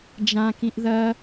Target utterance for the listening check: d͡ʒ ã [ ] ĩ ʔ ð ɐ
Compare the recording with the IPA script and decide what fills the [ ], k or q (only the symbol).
k